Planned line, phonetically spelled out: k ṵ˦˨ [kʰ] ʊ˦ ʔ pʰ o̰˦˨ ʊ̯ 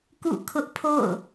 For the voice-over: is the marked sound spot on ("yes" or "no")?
yes